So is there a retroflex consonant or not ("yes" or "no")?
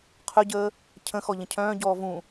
no